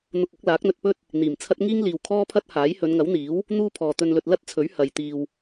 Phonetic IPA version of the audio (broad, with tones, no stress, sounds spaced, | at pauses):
n̪ ʊ˧ k̚ ʊ˨˥ k̚ l aː˨˥ k̚ n̪ ɵ˧ t̚ p ɵ˥ t̚ | n̪ iː˨˩ m t͡sʰ ɐ˥ t̚ ŋ iː˥ ŋ l iː˨ w kʰ ɔː˥ pʰ ɐ˥ t̚ h aː˨˥ j h ɵ˨˧ n ŋ ɐ˨˥ w n̪ iː˨˥ w | n̪ uː˥ pʰ ɔː˨ t̪ ɵ˧ n l ɵ˧ t̚ l ɐ˥ t̚ t͡sʰ ɵ˨˥ ɥ h ɐ˨ j t̪ iː˧ w